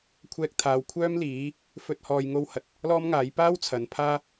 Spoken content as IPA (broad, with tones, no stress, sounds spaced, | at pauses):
kʷʰ ɛː˥ k̚ t̪ʰ aː˧ w kʷʰ œː˥ m l iː˨˥ | f ɵ˧ t̚ h ɔː˧ j ŋ o˥ w h ɐ˨ t̚ | l ɔː˥ m ŋ aː˨˥ j p aː˥ w t͡sʰ ɐ˨˥ n pʰ aː˥